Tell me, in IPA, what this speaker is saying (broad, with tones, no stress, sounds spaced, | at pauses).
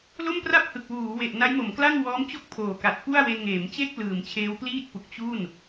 l o˥˩ m p r a˥˩ p̚ h ɯ˨˩ k̚ w uː˩˦ w e˨˩ ʔ n a˦˥ j m o˩˦ m k l a˥˩ ŋ w ɔː˦˥ m t͡ɕ o˥˩ k̚ pʰ oː˨˩ k a˨˩ t̚ p u˥˩ a̯ w e˧ n ŋ eː˩˦ m t͡ɕ e˥˩ k̚ l ɯː˨˩ m t͡ɕʰ eː˦˥ w p l iː˥˩ t̚ p u˨˩ k̚ t͡ɕ u˥˩ n